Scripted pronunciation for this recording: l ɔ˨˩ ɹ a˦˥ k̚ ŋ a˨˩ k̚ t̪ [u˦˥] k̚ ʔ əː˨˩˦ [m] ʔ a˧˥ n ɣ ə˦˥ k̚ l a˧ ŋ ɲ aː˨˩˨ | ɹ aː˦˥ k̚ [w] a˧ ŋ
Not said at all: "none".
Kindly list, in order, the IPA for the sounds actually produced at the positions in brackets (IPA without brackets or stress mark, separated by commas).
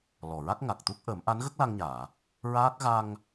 u˦˥, m, ɣ